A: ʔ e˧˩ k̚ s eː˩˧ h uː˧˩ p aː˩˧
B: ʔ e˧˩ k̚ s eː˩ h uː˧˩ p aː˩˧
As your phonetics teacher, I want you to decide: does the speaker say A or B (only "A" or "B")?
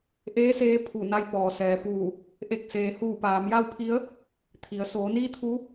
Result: B